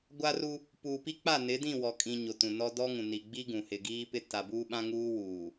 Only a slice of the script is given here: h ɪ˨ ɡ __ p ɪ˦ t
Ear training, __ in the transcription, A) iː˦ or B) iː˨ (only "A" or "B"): A